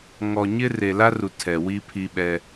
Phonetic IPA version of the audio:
ŋɔ˨ɲɪ˦ re˨la˦ru˨ tʰɛ˨wi˦ pʰi˦ɓɛ˦

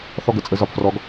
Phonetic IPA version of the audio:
θɔ˥ɡə˩˧t͡sʼə˧˥ zɒ˧pfrɔ˧˥ɡ

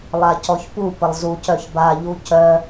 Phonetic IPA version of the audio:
lˠacɔçpu pəlˠzuc œçba ʎucœ

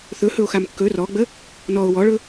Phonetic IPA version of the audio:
θɵhɵo̯xam kːɵ rɔɡ͡bə | nɔo̯ wɔɭɵ

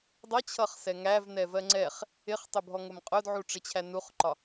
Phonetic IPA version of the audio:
dˤʌt͡ɕʰʌχsɛ ŋævnɛvɜ ŋ͡ǀɛχ | ɪχtˤʊbʱɔŋʊm qʼʊdʕuʈ͡ʂɪt͡ɕʰæ nuχǃɒ

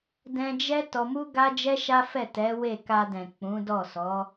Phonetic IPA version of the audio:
dɛ̃˧d͡ʒɛ˦ tɔ˧mu˦ ɡa˦d͡ʒɛ˦ʃa˦fɛ˦˨ tɛ˨˦we˦˨ ka˧dɛ̃˨ k͡pũ˨˦dɔ˦˨ sɔ˨˦

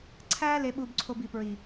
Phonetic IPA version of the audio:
ǀʰæ˦ le˦ɓu˦bǀʰo˦b i˨pɹi˨

